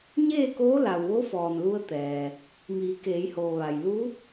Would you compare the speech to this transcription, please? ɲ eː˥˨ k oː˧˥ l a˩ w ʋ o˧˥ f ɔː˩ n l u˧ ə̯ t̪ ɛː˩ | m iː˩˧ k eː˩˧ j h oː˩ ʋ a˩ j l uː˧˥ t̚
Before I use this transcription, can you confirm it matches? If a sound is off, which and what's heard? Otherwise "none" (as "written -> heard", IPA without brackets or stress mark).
none